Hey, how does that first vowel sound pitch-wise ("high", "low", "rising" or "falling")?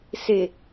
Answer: low